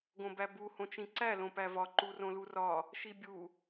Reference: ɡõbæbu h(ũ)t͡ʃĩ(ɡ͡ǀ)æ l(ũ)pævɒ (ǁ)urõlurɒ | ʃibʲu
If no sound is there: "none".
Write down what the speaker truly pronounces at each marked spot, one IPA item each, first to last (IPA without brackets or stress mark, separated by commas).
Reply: õ, ǀ, õ, ǃ